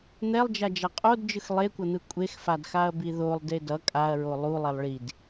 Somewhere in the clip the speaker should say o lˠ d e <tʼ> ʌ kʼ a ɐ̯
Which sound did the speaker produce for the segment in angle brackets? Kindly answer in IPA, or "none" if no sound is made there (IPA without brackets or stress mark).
d